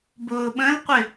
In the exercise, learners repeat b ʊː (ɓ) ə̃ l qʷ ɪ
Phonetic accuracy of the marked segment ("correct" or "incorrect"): correct